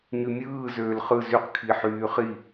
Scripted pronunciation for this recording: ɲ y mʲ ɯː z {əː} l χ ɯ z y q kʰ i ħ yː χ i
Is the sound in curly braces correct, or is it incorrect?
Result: incorrect